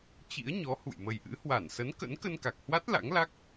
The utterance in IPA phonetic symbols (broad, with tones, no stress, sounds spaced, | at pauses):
t͡ɕ ḭ˧˥ ə̯ ɲ ɔ˨˦ h ṵ˧˨ j m ə˨˩ j ʔ ɨ̰˧˥ h w a˧˩ n s ə˨˦ n k ə̰˧˥ n k ə˧ n k a˨˩ k̚ h w a˦˥ t̚ l a̰˧˥ ŋ l a˦˥ k̚